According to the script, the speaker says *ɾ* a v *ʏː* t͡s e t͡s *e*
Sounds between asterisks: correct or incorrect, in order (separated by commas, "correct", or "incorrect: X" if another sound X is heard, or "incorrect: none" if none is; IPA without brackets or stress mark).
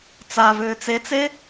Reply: incorrect: t͡s, correct, correct